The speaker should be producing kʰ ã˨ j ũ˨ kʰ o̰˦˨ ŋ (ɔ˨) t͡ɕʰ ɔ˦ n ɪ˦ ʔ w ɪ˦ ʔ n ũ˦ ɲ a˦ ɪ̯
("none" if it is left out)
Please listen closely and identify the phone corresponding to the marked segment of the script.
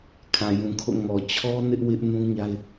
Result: ɔ˨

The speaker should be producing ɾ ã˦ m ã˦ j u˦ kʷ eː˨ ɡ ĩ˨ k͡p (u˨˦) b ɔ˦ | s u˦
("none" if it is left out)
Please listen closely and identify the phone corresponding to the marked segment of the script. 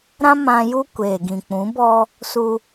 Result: ũ˨˦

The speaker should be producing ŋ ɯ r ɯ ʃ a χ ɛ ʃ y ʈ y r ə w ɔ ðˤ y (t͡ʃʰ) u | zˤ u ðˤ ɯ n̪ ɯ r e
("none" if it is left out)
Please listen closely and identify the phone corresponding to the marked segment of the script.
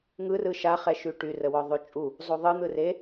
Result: t͡ʃʼ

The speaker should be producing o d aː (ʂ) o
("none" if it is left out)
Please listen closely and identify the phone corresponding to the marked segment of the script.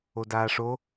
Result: ʂ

